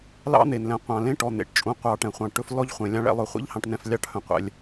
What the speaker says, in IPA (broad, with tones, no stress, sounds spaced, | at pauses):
l ɑ̰˦ n̪ e˨ n l ɛ̃˨ qʷ ɑ̃˨ l ẽ˦ ʈ ɔ˨ n̪ ḛ˨ ʈ t͡ʃʼ ũ˨ qʷ ɑ˨ ʈ ɛ̃˨ χʷ ɑ̃˨ ʈ ɵ˦ f l ɔ˦ ʎ χʷ ẽ˨ lʲ ɑ̃˦ ɭ ɛ̰˦ lˠ œ˨ χʷ ḛ˦ ʎ h ɑ̃˨ ʈ n ɛ̃˨ f lʲ ɑ˦ ʈ h œ̃˨ qʷ ɛ̰˨ lʲ